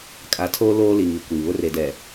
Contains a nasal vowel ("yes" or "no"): no